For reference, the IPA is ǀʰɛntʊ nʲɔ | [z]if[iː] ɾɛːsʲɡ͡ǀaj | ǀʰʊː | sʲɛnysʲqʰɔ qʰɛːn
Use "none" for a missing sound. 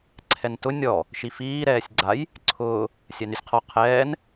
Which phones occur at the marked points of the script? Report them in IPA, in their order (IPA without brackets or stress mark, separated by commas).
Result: ʃ, iː